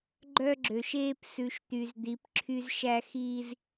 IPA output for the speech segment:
ɡ͡ǃ œ˦ ɡ͡ǁ ø˨ ʃ eː˦ p s ʉ˨ ʃ t̪ y˨ z d̪ i˨˦ p ǁʰ y˦ z ʃ æ˦ x iː˦ z

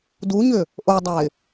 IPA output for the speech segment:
d u ɲ ʏ | ʔ o dˤ a ɪ̯

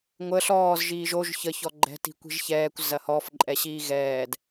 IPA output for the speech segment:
ŋʷ ə ɬ ɔː z ʒ iː ʒ o ʒ ç ə ç ɔ ɡ͡ǃ ɛ̤ t i̤ kʷ i̤ ʒ ç ɛː kʷ z ɐ h ɔ f ǃʼ ɛ ɕ iː ɣ ɛː d

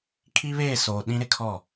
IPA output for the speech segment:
kʰ i˦ β eː˦˨ s oː˨ ɗ ĩ˦ ɾ ɪ˦ kʰ ɔ˦˨

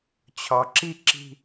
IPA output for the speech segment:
t͡ɕʰ ɒ˨ ǁ i˦ ǁ i̤˦

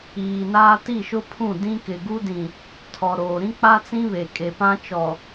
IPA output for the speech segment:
iː˨ n aː˦ t i˦˨ ʃ ʊ˦ pʰ ũ˦˨ d ĩ˦ k ɪ˨ ɡ u˦ d ĩ˨ | tʰ ɔ˨ ɾ oː˨ ɾ ĩ˦ k͡p a˦ t͡s ĩ˦ β e˨ kʼ e˨ p ã˦ t͡ʃ ɔ˨

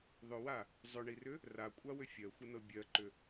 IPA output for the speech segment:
ðˤ ʏ w a | zˤ ʏ ɳ i r ʏ | r a kʷʼ a w ʏ fʲ ɜ xʷ ə n ɤ bʲ ɜ ǃ ʏ

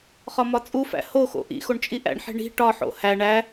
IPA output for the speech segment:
χ ɒ m ɒ t͡sʼ u f æ̰ h o x o̰ ʔ ḭ x o ɳ t͡ʃʼ i ʔ æ̰ ɳ ħ e̤ ɳ i̤ ʈ ɒ ħ o̰ h æ ɳ æ

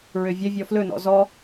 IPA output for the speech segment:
ɹ ø vʲ œ vʲ ɔ f l ɵ n ɔ̰ z ɔ

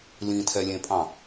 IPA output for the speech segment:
l ĩ tʰ ɛ lʲ ẽ pʼ ɑ̃

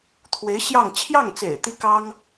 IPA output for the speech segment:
t̪ʰ w e˧˥ ɪ̯ ɕ j ɑ˥˧ ŋ t͡ɕʰ j ɑ˥˩ ŋ t͡s ḛ˨˩ ɪ̯ t̪ i˥ k ɑ˥ ŋ

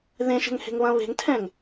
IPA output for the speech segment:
ð ẽ ʃ ɛ̤ ŋ h e̤ ŋ β ɐ̃ β e̤ ŋ tʰ ɛ̃ ŋ

